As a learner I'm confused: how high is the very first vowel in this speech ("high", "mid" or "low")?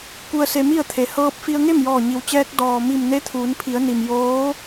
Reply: high